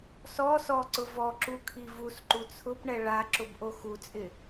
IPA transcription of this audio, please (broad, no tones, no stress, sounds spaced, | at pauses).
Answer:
s ɔ s ɔ ǀ ʊ v ɔ ǁ u kʰ i v u s ǃ u t͡sʰ ʊ p ɳ ɛ ɭ a ǁ ʊ b ʔ o x u t͡sʼ ɪ